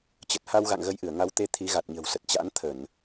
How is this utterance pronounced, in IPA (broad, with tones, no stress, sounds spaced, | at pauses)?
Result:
t͡ɕ ə˨˩ t̚ h a˧ w ɣ a̰˧˨ ŋ ɣ ə˨˦ j ʔ ɨ˧˩ ə̯ ŋ a˨˦ w t̪ e˧ t̪ʰ i˨˦ ɣ a˨˩ t̚ ɲ ə̤˨˩ w s ə˨˩ t̚ t͡ɕ a̰˧˥ n t̪ʰ ə˧˩˨ n